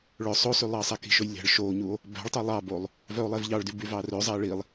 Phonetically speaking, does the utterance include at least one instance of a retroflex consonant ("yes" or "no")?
yes